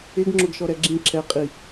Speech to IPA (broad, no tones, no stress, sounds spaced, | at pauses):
ɪ ɡ ŋ͡ǁ ʊ ɡ ʃ ɔ ɾ ɛ ɡ͡ǁ ĩ ǁ ɛ qʼ i